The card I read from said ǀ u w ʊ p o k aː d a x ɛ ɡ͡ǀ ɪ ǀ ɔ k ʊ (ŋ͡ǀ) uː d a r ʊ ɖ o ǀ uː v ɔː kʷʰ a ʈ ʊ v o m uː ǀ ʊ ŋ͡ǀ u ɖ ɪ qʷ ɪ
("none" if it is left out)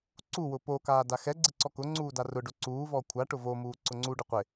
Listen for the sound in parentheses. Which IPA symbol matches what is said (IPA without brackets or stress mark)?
ŋ͡ǀ